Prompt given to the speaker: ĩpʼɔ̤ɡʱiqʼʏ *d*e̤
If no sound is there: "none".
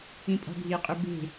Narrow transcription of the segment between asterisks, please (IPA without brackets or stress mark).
b